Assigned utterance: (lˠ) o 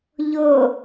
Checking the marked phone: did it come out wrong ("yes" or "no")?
yes